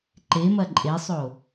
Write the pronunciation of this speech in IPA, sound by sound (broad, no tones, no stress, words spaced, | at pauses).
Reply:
ǃemɐ ǃʼesˤo